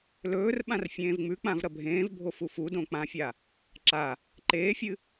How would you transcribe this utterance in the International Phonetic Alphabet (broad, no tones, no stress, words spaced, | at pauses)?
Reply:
lɵːrɓãr fʲẽːvŋ͡mʉk͡pãv ɾɐbʱẽːvbʱo fufudõ k͡pãfʲa | ǁa | ǃeːfʲɨ